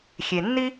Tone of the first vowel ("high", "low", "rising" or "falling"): low